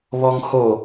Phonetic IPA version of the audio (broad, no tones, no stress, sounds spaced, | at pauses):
β ɔ ŋ h o